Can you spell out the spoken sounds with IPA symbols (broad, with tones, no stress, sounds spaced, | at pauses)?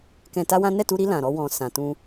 k ɛ̃˧ t a˦ w ã˦ n ɛ˦˨ t u˧ ɾ i˧ l ã˨ ɾ ɔ˧ w ɔ̃˨ s ã˨ t ũ˧